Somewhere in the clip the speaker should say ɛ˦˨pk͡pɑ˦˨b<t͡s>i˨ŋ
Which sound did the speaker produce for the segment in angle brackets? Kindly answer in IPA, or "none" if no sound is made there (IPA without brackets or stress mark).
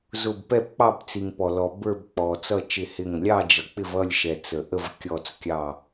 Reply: t͡s